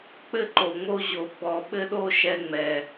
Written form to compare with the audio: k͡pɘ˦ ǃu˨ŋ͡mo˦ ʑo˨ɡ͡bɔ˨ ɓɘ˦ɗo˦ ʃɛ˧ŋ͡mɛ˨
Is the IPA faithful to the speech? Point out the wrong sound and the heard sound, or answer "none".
u˨ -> o˨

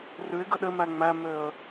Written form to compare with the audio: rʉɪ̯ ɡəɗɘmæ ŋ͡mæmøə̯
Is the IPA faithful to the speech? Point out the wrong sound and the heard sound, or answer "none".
none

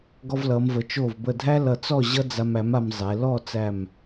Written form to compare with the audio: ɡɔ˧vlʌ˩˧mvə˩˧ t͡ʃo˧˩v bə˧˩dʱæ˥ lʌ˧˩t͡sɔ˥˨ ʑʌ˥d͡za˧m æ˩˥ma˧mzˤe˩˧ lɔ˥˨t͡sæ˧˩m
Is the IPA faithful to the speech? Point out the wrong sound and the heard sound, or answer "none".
none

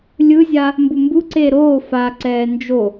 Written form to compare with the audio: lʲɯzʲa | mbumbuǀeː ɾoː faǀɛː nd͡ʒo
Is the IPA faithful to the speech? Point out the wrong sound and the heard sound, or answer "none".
none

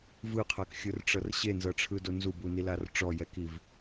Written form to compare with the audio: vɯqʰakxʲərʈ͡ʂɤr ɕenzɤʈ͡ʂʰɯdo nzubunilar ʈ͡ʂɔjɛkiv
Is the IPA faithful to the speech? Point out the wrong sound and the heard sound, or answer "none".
ə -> ɯ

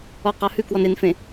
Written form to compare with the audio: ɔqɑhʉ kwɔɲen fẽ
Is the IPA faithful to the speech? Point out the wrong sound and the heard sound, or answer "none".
ɲ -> n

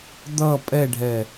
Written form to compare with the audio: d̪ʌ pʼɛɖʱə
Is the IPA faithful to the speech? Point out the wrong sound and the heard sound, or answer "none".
ə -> ɛ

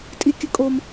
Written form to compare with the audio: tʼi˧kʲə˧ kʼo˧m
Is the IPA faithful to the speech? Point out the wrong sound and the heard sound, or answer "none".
none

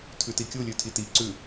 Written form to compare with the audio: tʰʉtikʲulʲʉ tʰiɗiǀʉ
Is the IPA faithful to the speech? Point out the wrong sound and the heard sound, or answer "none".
ɗ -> t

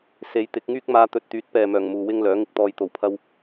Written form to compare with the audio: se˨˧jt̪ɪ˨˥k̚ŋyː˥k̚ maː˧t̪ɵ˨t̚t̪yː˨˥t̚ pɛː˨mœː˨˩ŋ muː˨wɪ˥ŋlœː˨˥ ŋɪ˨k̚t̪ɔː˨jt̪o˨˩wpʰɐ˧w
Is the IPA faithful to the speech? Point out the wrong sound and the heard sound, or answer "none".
none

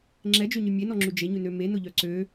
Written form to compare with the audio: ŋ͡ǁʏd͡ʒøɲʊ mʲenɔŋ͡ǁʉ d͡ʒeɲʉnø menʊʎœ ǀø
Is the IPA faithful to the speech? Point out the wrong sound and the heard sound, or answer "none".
ʏ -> ɛ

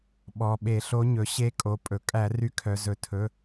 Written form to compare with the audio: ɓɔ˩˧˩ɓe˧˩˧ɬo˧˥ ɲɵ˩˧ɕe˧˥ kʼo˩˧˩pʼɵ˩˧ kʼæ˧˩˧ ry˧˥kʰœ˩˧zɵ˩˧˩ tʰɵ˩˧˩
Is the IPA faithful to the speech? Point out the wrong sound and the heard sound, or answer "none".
none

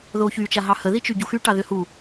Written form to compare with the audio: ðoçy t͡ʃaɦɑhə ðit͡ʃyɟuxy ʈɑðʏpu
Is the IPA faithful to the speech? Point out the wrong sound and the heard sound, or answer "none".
p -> h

